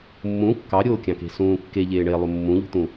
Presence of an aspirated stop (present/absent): absent